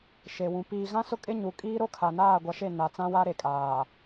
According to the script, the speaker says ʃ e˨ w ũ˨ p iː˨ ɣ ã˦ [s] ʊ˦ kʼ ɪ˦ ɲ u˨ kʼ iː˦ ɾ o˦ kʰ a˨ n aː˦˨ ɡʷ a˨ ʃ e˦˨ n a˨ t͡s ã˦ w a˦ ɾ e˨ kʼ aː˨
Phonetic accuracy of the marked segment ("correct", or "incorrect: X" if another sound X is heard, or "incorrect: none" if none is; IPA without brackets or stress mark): correct